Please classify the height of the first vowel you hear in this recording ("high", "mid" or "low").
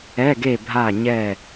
mid